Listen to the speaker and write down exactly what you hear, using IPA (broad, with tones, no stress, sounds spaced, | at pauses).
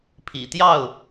pʰ ḭ˨˩ t̪ j ɑ˥˨ ʊ̯